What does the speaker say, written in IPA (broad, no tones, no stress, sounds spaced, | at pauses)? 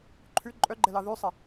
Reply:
ǃʰ ʉ ǃʼ œ ɡ͡ǃ ɛ l ɑ ð ʉ sˤ e